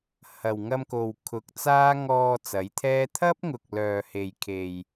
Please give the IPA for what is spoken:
hɐ˨w ŋɐ˧mko˨w kʰʊ˨˥k̚t͡saː˥ ŋɔː˧ t͡sɐ˨˥jt̪ʰɛː˥ t̪ʰɐ˥p̚ŋʊ˨k̚ lœː˨he˨jkʰe˨j

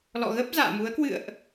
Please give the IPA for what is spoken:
lɔ̰˧˨ɣə˦˥p̚ za̰ː˧˨mu˨˦ə̯ kwɨ̰˧˨ə̯ʔ

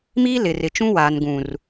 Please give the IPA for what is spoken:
miː˦lɪ˨rɪ˨t͡ʃũ˦ waː˨nɡũ˨r

